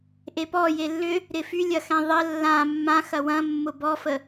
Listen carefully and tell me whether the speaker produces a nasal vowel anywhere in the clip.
yes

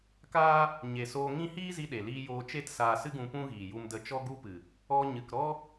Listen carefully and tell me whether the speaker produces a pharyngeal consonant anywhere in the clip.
no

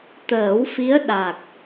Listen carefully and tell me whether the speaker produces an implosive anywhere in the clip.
yes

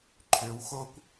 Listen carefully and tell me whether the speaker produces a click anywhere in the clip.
yes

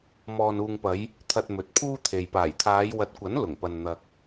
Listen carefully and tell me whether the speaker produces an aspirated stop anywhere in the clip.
yes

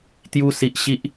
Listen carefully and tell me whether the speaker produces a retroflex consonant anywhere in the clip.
no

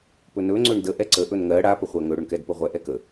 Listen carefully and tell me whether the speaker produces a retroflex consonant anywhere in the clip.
yes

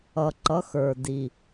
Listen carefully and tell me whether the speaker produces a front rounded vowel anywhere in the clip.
no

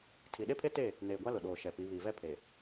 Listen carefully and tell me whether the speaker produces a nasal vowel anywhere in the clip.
no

